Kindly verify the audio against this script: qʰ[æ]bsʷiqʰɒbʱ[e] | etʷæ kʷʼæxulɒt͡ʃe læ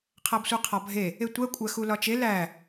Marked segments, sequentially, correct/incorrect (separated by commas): correct, correct